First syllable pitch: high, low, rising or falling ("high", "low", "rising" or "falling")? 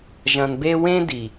low